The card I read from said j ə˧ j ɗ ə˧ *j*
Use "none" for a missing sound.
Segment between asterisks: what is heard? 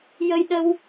w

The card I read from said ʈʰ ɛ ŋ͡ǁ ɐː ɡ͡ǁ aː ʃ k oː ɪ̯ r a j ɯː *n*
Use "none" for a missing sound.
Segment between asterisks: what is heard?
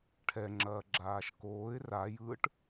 ʈ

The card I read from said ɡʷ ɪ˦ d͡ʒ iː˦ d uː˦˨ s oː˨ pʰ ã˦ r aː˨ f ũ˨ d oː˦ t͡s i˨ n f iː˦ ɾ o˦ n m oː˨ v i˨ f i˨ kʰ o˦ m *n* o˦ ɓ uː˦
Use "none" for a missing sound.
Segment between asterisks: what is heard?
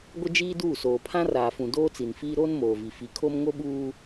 ŋ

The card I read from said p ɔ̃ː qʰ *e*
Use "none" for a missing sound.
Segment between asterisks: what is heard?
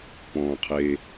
e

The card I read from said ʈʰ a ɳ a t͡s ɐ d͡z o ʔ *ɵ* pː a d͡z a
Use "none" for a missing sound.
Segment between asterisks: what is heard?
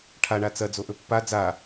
ɵ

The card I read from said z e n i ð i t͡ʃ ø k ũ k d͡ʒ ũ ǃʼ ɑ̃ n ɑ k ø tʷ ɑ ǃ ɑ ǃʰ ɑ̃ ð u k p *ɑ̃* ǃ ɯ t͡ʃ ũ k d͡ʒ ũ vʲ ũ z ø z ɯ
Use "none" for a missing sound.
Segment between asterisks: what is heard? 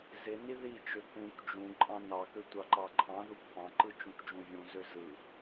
ɑ̃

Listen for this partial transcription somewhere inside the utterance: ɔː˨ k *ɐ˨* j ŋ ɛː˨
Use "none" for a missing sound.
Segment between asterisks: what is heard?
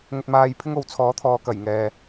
ɐ˨˩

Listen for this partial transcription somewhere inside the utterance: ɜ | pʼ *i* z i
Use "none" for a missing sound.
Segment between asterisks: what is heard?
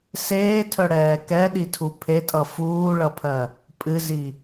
ɨ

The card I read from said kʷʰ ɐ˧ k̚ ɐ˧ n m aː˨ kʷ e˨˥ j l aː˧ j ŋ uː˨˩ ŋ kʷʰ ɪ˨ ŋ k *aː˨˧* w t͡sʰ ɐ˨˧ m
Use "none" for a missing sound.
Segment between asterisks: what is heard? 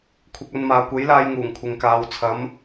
aː˨˧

